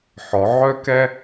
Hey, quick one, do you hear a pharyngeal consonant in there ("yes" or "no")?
yes